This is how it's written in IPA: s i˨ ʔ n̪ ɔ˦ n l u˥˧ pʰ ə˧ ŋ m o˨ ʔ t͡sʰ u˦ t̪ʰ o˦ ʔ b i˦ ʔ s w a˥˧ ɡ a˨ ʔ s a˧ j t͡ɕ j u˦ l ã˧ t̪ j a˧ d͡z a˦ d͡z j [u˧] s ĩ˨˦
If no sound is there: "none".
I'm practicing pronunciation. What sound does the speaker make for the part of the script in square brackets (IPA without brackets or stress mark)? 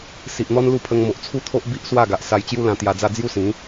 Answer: u˦